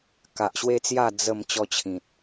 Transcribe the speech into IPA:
k a˨ ʔ ɕ w e˦ t͡s j a˥˧ d͡z ə˥˧ m t͡ɕ ɔ˦ t͡ɕʰ ĩ˨ t̚

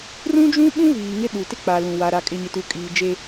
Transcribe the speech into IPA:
r ũ˦ d͡ʒ ũ˦ ɓ ũ˦ v iː˨ ŋ ɪ˦ ɗ u˨ t ɪ˦ k͡p a˨ l ũ˨ w a˨ ɾ a˨ kʼ ɪ˨ ɲ ɪ˨ t u˨ kʼ iː˨ d͡ʒ eː˦

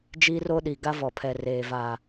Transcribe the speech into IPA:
d͡ʒ i˦ r o˦ ɗ i˨ ɡ a˦ v ɔ˨ pʰ ɛ˨ r eː˨ v a˨

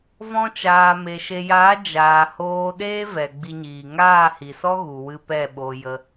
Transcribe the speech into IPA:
v ɔ̃˧ t͡ʃ aː˨ m e˨ ʃ e˨ j aː˨˦ d͡ʒ aː˨ h oː˧ ɗ eː˦ v ɛ˨ ɡ͡b i˧ ɲ iː˨ ŋ aː˦˨ h i˨ s ɔ˦ ɣ u˨ w ɨ˧ p ɛ˦˨ ɓ o˧ j ə˧

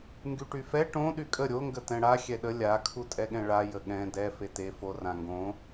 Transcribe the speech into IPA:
ŋ ɡ y ʈ y f ɛ ʈ õ ɗ y kʼ ə ɾʲ o ŋ ɡ ə t ɛ̃ ɽ a xʲ ɛ ɗ ə lʲ a kʰ u tʼ ɛ ɠ ɛ̃ ɭ a j ə ɠ ɛ̃ d ɛ f e t e f o r ã ŋ ɡ õ

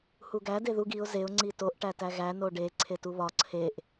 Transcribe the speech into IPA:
h u ɡ æ d e ð u ɡ i ʊ̯ z e ʊ̯ ŋ͡ǀ i t o ʔ ʈ æ t æ ɣ æ n o ɖ e ǀʰ e t u β ɒ ǀʰ e ʔ

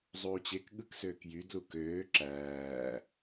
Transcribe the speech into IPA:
zˤ uː t͡ɕ e k ɠ ɯ k s øː k j y d l u k øː ǁ æː

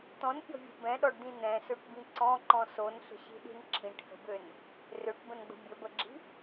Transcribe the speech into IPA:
t̪ ɔ̃ n pʲ ɔ̤ vʲ o̤ b ɛ̃ ɗ ɔ ɖ d̪ ĩ n̪ ɛ̃ s ø ʈ b ĩ ǀ ɔ̃ ǃ ɔ̃ s o n ɬ ə̤ ɕ i̤ ɗ i̤ n ǁʰ ĩ ʈ h ə̤ b ø n | r ø ʈ b ə̃ n ɡ͡b ə̤ bʲ ə b ə ɡ͡ǁ i̤

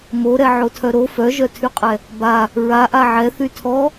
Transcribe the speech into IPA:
m o ɾ ɛ ʕ o tʰ œ ɾ o f œ ʒ œ tʰ y qʼ ɛ | b a | ɹ a ʔ a ʕ ɛ θ y tʰ ɔ

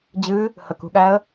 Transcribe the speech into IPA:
d͡ʑ ɨ | h ə k ṳ ɠ æ ə̯

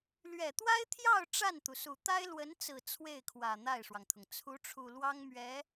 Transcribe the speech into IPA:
l ɥ ɛ˨˩ t̪ w a˥ ɪ̯ t̪ʰ j ɑ˥˧ ʊ̯ ʈ͡ʂ a˥˩ n t̪ u˩ s u˨˩ t̪ a˥ ɪ̯ l w ə˧˥ n t͡s ɹ̩˨˩ t͡sʰ w e˥˩ ɪ̯ kʰ w ä˨˩ n̪ a˥˩ ɪ̯ ʂ w ɑ˩ ŋ t̪ʰ ʊ˩ ŋ t͡sʰ u˧˥ ʈ͡ʂʰ u˨˩ l w ɑ˥ ŋ m ɥ ɛ˧˥

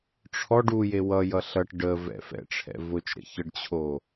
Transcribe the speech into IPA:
ʈ͡ʂʰ ɔ ɖ u j e w ʌ j ʌ ɬ ʌ ʈ ɖ ə v ɛ̰ f ɛ̰ ʈ͡ʂʰ ɛ̰ v ʊ t͡ʃ ɾ ə̰ ç ə ɖ t͡ɕʰ o

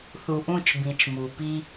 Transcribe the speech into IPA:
θ u˨ ʔ ũ˦˨ t͡ʃ b ĩ˨ t͡ʃ m u˨ p i˦

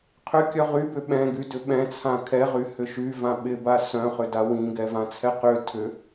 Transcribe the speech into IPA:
qʰ ʏ kʲ œ ʁ y b ʏ ɓ ɛ̃ ɡ y d ʏ ɓ ɛ̃ t͡sʰ ã kʰ ɛ ʁ y h ʏ ʃ y v ã ɓ ɪ b a s œ̃ χ ʏ d a w ĩ ɡ ɛ v ã t͡sʰ ɛ q ʏ tʰ ʏ

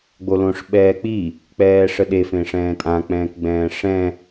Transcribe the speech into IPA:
ɡ͡b o l õ ʂ ɓ ɛː k͡p i | k͡p ɛː ʂ ə ɗ e f ẽ ʂ ɛ̃ː tʼ ã k͡p ɛ̃ː k ɡ͡b ɛ̃ː ʂ ɛ̃

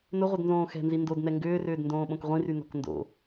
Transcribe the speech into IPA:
n ʊ ʁʷ œ d n z õː x ɛ̤ n z i n d o d n ɛ ŋ ɡ ʏː r ʏː d n d õː ɓ õ k ʁʷ ĩ r y n ɔ̤ k n d o̰

